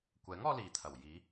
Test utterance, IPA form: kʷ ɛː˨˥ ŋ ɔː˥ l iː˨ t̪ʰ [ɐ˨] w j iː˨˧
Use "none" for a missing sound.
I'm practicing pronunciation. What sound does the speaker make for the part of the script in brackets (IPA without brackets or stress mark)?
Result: ɐ˨˩